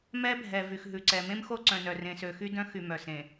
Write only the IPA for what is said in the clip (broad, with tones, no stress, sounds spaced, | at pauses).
m ɛ˦ bʱ ɛ˨ v y˨ x ɦ ʉ˨ ǀ ɛ˨ m ẽ˦ m x o˦ ǀ œ̃˨ n œ˨ r ẽ˨ s ø˨ x y˦ d œ̃˦ x y˨ m œ˨ s ẽ˨